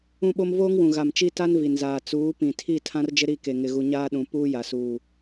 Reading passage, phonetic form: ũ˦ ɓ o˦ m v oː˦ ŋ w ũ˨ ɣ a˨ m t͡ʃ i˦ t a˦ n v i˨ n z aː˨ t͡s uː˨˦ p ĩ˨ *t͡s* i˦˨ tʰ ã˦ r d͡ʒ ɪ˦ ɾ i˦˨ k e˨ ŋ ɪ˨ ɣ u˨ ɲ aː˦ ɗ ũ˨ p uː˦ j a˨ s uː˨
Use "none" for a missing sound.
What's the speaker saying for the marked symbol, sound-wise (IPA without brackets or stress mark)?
tʰ